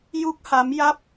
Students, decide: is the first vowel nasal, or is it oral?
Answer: oral